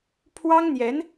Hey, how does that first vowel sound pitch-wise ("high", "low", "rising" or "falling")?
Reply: high